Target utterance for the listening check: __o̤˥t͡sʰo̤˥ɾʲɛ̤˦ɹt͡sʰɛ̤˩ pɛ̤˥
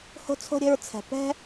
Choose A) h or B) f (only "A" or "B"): A